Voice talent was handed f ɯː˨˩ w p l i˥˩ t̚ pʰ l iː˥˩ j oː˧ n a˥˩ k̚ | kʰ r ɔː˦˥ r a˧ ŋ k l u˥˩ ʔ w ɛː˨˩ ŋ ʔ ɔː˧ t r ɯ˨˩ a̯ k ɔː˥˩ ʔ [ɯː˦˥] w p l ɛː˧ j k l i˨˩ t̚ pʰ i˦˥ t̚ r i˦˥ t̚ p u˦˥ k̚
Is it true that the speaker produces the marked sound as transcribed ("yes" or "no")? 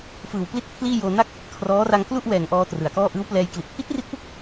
yes